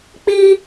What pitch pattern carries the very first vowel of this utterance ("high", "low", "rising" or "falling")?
high